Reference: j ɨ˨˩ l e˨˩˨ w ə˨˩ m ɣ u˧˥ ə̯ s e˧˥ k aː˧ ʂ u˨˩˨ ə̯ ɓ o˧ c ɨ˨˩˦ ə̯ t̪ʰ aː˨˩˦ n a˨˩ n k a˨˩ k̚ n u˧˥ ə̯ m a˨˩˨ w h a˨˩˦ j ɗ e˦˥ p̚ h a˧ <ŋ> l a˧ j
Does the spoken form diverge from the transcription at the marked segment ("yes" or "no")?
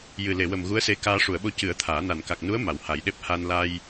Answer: yes